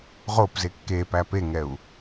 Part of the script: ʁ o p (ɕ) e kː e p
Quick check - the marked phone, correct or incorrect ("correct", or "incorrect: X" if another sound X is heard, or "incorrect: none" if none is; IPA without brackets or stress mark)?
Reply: incorrect: z